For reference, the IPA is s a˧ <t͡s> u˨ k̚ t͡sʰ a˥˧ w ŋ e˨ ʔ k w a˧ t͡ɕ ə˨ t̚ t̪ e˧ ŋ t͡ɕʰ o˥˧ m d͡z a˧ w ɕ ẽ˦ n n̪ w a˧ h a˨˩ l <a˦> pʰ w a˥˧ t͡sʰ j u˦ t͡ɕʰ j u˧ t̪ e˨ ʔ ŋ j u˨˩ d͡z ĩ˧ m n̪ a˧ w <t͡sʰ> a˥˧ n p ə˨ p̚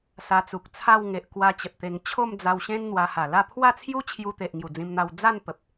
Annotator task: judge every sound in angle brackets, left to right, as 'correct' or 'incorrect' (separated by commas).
correct, incorrect, incorrect